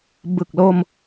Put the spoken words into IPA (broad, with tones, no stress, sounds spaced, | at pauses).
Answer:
b ɯ˨˩ k̚ l o˧ m